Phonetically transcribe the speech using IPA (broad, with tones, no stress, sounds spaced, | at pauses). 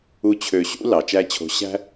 u˦ t͡ɕʰ ø˧ ɕ ṵ˦ l ɑ˨ t͡ʃ æ˦ t͡ɕʰ o̤˧ ɕ æ̤˦